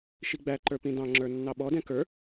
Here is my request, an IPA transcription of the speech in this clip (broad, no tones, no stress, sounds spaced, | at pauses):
ʃ i ɡ͡b æ ǃ ə˞ p ĩ d ɑ̃ ŋ͡ǁ ə˞ nː ɑ ɓ ɔ d ɛ̃ k ə˞